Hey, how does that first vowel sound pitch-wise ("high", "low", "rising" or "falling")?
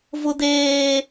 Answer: high